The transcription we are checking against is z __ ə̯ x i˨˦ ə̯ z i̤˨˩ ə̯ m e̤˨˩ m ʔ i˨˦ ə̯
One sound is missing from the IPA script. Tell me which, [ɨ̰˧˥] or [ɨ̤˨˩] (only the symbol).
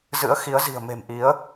ɨ̰˧˥